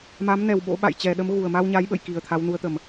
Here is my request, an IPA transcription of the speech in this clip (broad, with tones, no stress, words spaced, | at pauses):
ma˨˦mnɛ˨˩w ɓo̰˧˥ ɓa̰˧˨jt͡ɕɛ˨˩ɗə˨˦m ɣu˨˩ə̯ma˧wɲa˨˦jɓə̰˧˨j ki˨˩ə̯t̪ʰa˨˦wnu˨˦ə̯ t̪ə˨˩m